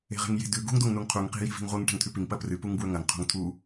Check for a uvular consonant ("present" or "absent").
present